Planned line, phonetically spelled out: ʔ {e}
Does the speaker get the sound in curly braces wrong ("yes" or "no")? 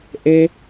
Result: no